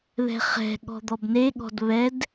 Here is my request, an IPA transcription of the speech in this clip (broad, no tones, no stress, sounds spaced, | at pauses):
ð ɛ̤ χ ɛ̤ ɠ ɔ̤ d̪ ɔ b n e ɠ ɔ̤ d β ɛ d